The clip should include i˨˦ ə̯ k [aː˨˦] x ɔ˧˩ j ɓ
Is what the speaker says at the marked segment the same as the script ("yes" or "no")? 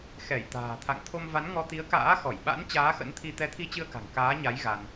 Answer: no